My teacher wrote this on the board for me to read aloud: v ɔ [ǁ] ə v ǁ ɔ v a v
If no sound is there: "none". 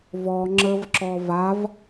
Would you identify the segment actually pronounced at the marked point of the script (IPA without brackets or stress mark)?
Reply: ŋ͡ǁ